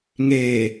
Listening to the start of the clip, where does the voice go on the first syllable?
low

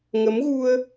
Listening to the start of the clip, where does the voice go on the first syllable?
rising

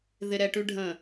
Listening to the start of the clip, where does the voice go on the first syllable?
low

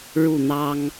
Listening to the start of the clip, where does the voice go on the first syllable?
falling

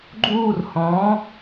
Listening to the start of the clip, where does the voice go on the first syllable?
falling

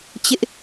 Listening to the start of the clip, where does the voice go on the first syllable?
high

